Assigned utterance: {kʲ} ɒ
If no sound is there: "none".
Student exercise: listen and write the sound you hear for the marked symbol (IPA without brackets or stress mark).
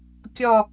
kʲ